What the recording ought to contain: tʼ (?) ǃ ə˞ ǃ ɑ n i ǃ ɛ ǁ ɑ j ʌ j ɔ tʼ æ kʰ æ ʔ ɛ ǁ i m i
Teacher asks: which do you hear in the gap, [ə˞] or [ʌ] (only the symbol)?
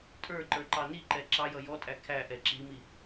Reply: ə˞